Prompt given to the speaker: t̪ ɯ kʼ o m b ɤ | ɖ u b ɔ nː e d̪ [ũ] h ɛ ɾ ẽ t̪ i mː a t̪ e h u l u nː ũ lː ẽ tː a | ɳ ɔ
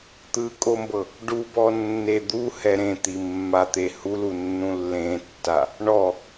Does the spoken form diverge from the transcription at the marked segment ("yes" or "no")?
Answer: yes